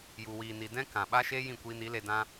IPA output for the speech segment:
ju˨wiː˨ni˨ dɛ̃˦ kã˨ɓa˦ʃe˦ jĩ˦˨kʷiː˧ni˨˦le˧ dã˦

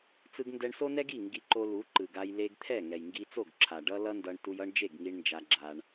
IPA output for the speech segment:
t͡sɯ˧ɡndɛ˧ɳso˦nɛ˦ɡ i˦˨ ŋɡi˧ǃo˧ lu˨˦ǃɯ˨ɡa˧j le˧ɡt̪ʰɛ˦˨ ŋɛ˨jŋɡi˧t͡so˦˨ɡǁʰa˨ ɖʌ˦lʌ˦ndʌ˧ɳtu˧j ʌ˦ɳ d͡ʒe˦˨ɡŋi˧ɳ nd͡ʒa˧ɡ͡ǁa˧ɳ

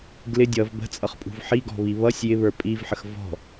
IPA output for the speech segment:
ɡlɪ dʲʌv bə̤t͡sʼʌχpʼṳv ħiɡɔ̤βi βʌsʲ jɪβə˞ pʼivħəx vɔ̤

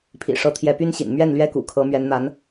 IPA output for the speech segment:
pʰḭ˨˩ʂɤ˧˥ t̪ʰjɛ˧˥py˥nɕḭ˨˩n mɥɛ˥˩n lɥɛ˥kṵ˨˩kʰɤ˧˥ mɥɛ˧˥nn̪a˧˥n

